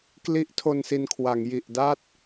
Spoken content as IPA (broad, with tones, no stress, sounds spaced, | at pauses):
k l i˦˥ ʔ tʰ o˧ n s i˧ n kʰ w a˩˦ ŋ j i˨˩ ʔ d a˥˩ t̚